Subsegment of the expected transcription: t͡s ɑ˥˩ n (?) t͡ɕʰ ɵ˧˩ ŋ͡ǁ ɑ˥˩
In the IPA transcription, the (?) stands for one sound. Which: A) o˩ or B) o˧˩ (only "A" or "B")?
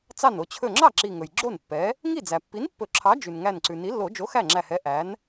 B